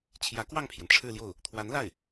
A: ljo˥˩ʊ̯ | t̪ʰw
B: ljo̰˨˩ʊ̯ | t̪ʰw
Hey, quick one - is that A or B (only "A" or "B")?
A